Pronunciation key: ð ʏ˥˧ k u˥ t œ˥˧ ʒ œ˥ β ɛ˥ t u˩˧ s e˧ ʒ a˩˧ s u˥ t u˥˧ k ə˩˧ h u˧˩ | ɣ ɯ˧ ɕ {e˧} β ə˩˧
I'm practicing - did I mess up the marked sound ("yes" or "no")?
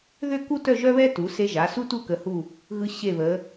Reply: yes